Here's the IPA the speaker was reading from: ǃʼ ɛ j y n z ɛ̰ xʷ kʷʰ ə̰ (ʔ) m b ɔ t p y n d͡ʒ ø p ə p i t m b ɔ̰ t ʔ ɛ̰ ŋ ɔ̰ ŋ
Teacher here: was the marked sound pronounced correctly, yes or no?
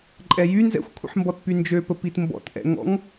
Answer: no